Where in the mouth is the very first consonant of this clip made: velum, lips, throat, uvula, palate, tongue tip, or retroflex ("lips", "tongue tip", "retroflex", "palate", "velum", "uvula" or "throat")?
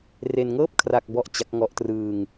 tongue tip